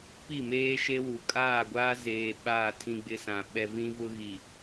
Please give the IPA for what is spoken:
p i˦˨ m eː˦ ʃ e˦ w u˨ kʼ aː˦˨ ɡʷ aː˦ z eː˨ ɓ aː˦˨ tʰ ĩ˦ ɡ͡b ɪ˦ s ã˨ ɓ ɛ˨ v ĩ˦ v ʊ˦ ɣ i˨

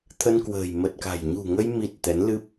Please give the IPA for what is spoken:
t̪ʰ ə˧ n k w ə̤ː˨˩ j m ə˨˩ t̚ k a̤˨˩ j ɲ ṳ˨˩ ŋ ə˧ j m i˨˩ t̚ t̪ ɛ˨˦ n l ɨ˦˥ p̚

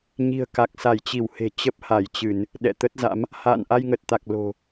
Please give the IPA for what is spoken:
ɲ i̤˨˩ ə̯ k a˨˩ k̚ s a˧˩ j t͡ɕ i˧˩ w h e̤˨˩ t͡ɕ ə˦˥ p̚ h a˧˩ j t͡ɕ ɨ˧˩˨ n | ɗ ɛ̰˧˨ t̪ ə˦˥ t̚ z a̰˧˥ m | h a̰ː˧˨ n ʔ a˧ j ŋ ə˨˩ t̚ t̪ a˨˩ k̚ l o̤˨˩

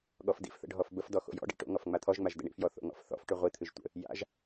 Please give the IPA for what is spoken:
ɠ ɔ f d ḭ f θ ə̰ ɖʱ ɔ f b ə f d ɔ x o̰ j ɔ̰ ɖ ḭ ʈ o̰ ŋ ɔ f ŋ͡m a t̪ʰ ɔ ʒ ŋ͡m a ʒ d ə̰ ɳ ḭ f j ɔ θ o̰ ŋ ɔ̰ f θ ɔ̰ f ʈ ʉ ʁʷ i t̪ʰ ɨ ʒ tʷ ə̰ | j a̰ ʒ

